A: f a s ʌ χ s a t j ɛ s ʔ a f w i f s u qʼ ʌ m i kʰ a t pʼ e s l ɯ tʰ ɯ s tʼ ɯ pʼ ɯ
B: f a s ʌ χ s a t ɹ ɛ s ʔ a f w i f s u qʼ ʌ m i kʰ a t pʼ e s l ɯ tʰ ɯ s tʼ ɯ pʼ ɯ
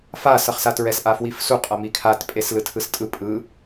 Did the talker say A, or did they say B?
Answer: B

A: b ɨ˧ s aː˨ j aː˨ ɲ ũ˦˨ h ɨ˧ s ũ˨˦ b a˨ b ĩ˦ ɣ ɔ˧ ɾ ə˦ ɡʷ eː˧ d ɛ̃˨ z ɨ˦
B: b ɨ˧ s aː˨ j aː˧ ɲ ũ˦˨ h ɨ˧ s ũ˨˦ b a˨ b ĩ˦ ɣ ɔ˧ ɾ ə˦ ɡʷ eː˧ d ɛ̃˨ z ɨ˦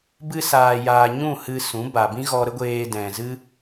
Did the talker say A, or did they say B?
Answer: A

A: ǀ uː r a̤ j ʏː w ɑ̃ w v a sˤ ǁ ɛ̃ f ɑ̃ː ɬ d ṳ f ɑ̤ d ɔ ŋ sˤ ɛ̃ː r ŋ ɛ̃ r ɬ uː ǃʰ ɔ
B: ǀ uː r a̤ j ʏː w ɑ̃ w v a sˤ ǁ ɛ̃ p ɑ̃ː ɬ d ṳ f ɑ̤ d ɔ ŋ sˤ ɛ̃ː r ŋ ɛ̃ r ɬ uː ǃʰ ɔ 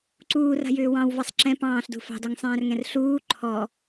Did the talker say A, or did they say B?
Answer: B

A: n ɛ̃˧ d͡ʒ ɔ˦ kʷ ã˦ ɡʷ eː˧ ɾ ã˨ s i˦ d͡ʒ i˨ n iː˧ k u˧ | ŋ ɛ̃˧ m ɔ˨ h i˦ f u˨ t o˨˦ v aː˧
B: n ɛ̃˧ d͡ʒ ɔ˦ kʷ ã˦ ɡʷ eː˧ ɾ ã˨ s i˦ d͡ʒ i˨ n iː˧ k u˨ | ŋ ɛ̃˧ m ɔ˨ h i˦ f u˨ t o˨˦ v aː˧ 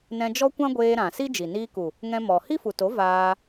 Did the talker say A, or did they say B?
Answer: B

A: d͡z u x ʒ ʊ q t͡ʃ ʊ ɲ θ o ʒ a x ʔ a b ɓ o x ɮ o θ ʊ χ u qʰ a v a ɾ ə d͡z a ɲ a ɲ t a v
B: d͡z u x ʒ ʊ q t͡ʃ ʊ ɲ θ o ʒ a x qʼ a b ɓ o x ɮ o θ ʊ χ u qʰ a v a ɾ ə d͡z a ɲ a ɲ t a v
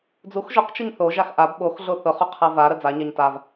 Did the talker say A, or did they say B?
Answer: A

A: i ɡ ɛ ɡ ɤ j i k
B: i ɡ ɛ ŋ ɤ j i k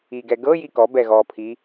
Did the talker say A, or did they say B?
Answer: A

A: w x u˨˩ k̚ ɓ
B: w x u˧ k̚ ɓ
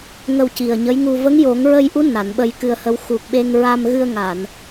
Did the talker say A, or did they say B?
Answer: A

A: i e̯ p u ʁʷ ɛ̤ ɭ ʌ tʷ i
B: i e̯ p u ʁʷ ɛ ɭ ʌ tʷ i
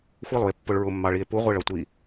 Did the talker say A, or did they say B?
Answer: B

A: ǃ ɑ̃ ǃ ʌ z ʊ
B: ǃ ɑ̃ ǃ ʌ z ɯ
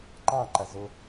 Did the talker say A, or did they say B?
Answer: A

